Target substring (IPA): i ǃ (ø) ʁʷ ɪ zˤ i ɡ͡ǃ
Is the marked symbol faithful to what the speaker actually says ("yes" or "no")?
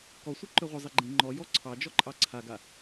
yes